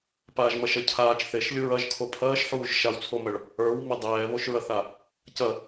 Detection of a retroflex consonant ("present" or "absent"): present